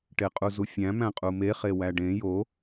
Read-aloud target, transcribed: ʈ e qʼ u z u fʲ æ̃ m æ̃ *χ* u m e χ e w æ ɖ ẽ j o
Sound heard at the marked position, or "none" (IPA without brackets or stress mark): qʼ